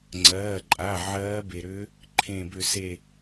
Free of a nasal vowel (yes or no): no